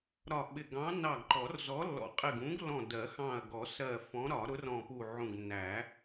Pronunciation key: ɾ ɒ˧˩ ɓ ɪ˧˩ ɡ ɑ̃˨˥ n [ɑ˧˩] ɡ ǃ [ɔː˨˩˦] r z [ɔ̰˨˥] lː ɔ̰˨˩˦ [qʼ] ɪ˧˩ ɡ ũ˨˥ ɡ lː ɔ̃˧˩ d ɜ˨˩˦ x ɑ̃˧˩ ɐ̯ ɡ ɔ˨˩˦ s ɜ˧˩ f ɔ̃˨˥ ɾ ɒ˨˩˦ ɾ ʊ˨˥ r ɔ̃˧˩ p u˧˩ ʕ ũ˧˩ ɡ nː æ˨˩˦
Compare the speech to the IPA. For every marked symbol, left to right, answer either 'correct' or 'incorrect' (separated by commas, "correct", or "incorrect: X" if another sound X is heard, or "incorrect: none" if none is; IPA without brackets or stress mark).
correct, incorrect: ɔ˨˩˦, incorrect: ɔ˨˥, correct